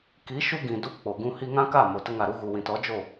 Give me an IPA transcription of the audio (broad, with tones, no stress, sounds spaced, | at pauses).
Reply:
k i˨˦ ʃ u˧ ɡ ĩ˨ d u˦ p k͡p o˨ ɡ ũ˦ h i˧ ŋ ã˦ k a˦˨ m o˨ t ə˧ ŋ a˨ ɾ u˦ ɣ u˨ w ĩ˨ t ɔ˨˦ d͡ʒ o˦˨